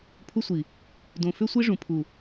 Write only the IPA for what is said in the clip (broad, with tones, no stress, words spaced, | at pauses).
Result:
pʰu˦sʷi˨ | dõ˨fʏ˦sʷi˦ ʐũ˨pʰu˨